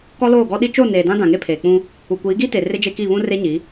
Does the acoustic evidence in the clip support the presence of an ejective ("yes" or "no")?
no